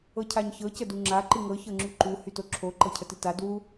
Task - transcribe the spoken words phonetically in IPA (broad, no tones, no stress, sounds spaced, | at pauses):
ɤ cʰ a ɲ ç ɤ c ə d u ŋ͡ǁ a ǃ ɨ ŋ ɤ ç ɤ ŋ͡ǁ y ǃ u h y t o ǁʰ o ǃ ɤ cʰ ə t ɨ t a d w u